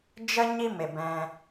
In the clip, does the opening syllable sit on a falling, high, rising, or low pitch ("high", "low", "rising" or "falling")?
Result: high